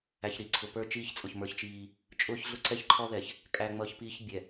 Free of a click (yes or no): no